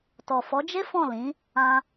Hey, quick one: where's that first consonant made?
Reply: tongue tip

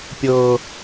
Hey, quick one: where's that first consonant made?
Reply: lips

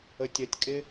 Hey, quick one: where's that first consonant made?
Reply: tongue tip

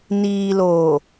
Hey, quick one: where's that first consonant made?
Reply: tongue tip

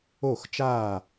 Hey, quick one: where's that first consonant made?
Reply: velum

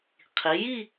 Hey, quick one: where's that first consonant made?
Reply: uvula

